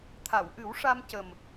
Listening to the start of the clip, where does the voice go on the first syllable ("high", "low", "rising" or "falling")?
low